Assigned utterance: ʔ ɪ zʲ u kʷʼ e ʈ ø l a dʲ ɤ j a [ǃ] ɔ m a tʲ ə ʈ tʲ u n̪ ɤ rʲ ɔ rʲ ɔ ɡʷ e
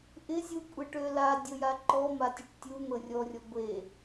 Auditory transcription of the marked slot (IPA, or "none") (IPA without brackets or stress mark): ǃ